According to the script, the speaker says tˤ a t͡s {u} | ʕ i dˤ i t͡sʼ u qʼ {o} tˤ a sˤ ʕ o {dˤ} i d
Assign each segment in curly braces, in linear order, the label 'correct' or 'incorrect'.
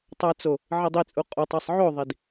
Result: incorrect, correct, incorrect

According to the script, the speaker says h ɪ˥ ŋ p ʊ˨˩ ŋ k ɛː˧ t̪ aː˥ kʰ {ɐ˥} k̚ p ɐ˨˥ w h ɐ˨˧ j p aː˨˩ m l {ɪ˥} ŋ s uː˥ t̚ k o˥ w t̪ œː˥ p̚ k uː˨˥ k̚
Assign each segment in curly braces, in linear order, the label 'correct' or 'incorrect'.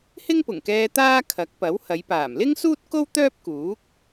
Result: incorrect, correct

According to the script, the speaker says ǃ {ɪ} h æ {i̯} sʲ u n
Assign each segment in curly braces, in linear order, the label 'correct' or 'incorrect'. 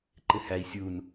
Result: correct, correct

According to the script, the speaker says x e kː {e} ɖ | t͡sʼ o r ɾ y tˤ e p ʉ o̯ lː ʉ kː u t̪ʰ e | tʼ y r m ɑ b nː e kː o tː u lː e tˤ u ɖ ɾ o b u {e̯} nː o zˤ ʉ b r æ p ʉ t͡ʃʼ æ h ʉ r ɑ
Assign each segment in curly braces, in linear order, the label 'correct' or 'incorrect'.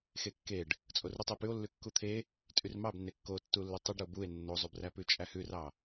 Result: correct, correct

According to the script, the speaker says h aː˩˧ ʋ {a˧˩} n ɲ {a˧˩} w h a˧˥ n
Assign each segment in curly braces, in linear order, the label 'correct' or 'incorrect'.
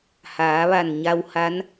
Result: correct, incorrect

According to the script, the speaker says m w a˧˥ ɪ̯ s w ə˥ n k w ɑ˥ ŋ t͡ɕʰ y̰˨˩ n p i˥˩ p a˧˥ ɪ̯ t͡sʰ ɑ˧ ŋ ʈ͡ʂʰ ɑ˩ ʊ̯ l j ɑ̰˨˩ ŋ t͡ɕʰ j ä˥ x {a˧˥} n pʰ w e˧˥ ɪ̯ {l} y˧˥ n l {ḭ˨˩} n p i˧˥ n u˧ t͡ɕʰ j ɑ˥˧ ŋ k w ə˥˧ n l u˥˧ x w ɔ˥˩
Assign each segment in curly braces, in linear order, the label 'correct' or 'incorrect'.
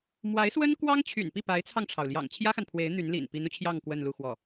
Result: incorrect, incorrect, correct

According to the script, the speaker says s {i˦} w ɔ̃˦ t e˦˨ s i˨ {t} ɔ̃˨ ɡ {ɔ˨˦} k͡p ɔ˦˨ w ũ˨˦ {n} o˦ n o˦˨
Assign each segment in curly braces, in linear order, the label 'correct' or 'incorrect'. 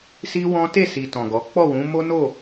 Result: correct, correct, correct, incorrect

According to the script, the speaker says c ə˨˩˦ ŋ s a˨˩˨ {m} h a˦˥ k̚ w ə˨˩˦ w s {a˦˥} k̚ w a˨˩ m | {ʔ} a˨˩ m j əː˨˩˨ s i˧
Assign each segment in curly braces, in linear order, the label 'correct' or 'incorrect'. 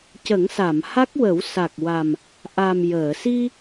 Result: correct, incorrect, correct

